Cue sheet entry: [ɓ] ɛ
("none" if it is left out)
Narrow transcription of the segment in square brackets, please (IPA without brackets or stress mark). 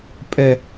pʼ